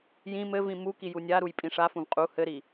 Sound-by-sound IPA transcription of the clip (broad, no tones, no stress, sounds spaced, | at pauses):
j ĩ m ɘ v ĩ m u k i j u nʲ a ɾ u j pʼ ĩ ʂ a f ũ v qʼ u h ɘ ɾ i